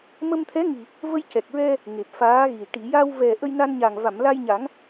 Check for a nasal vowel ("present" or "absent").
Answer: absent